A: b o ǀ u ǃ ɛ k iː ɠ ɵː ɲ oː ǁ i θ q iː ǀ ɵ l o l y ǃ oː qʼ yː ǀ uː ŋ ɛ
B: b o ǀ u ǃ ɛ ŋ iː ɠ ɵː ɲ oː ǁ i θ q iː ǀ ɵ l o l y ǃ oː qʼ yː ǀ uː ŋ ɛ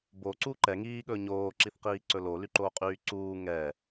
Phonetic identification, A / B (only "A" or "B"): B